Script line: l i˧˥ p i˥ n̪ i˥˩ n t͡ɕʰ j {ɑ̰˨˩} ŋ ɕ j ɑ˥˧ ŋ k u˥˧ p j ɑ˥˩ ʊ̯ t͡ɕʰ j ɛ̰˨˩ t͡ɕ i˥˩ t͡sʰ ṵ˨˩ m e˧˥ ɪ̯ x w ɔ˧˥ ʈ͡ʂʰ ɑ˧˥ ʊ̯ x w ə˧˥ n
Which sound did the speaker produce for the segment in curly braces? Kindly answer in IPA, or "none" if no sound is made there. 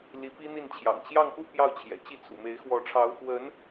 ɑ̰˨˩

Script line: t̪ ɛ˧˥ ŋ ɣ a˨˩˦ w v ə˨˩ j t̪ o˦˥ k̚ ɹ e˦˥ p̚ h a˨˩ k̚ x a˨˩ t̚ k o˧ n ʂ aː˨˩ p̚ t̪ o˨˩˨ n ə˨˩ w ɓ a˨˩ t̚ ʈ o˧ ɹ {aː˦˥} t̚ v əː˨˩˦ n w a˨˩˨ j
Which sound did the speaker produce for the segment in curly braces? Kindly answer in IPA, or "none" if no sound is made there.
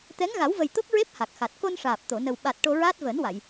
aː˦˥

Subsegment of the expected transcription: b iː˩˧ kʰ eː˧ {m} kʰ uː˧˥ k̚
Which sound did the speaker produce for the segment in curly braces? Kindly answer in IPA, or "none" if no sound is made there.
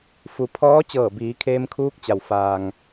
m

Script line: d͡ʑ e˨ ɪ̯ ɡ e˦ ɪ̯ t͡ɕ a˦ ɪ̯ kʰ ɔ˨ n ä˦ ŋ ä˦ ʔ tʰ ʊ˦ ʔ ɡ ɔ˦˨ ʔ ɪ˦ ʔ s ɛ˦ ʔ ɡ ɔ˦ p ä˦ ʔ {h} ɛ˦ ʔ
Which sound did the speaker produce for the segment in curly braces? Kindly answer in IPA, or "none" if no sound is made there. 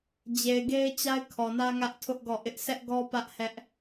h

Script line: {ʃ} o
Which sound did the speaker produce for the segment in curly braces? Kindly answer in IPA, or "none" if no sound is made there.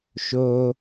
ʃ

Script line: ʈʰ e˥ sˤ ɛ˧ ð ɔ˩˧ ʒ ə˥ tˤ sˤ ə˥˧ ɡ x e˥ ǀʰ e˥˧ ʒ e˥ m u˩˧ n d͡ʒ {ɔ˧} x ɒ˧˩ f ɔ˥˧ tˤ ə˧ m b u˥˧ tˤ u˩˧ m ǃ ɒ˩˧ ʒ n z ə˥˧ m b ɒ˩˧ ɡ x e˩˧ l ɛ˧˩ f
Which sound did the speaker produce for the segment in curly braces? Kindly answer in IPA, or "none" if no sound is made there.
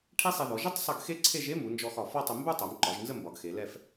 ɔ˧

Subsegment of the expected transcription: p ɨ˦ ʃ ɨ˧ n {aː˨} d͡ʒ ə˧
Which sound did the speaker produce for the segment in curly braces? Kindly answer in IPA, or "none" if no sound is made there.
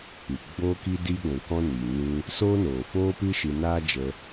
aː˦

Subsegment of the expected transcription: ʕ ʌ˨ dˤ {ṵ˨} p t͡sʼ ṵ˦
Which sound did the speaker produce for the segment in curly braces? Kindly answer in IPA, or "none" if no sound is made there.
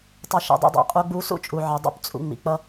ṵ˦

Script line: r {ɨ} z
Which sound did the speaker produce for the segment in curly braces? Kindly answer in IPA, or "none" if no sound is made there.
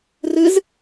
ɨ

